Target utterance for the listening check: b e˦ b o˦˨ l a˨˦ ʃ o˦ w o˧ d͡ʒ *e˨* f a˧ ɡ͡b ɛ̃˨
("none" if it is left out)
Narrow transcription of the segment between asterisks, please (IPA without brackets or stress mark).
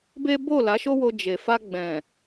e˨